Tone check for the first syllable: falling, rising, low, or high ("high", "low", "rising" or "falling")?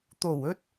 low